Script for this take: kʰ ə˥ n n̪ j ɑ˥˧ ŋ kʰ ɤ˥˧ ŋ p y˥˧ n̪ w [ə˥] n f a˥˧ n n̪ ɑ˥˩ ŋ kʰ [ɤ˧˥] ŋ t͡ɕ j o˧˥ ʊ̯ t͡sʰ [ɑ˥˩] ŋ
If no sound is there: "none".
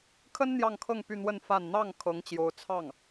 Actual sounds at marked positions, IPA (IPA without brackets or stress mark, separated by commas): ə˥˧, ɤ˧˥, ɑ˥˩